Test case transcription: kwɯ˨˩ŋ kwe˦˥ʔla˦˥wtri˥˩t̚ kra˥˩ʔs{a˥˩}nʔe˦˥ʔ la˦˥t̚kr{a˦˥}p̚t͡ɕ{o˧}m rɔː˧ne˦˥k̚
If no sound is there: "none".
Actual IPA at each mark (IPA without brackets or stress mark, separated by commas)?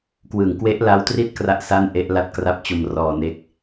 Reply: a˥˩, a˦˥, o˧